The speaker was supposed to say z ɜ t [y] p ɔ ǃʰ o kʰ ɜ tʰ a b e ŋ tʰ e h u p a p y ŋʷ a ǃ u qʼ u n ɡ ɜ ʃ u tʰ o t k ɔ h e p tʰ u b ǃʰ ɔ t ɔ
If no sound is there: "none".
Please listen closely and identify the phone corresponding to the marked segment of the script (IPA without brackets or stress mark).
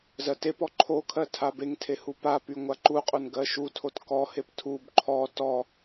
e